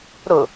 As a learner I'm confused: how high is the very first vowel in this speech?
high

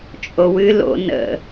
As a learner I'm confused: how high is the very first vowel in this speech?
mid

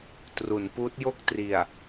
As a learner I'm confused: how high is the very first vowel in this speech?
high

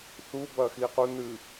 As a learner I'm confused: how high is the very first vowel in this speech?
high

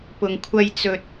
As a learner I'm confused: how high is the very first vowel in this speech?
high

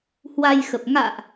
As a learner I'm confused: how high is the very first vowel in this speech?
low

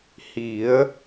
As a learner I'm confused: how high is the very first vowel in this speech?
high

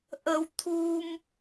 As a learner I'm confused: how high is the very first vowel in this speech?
mid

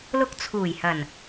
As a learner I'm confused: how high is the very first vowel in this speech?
high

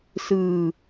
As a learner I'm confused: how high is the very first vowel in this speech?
high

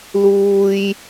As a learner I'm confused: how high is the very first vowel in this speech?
high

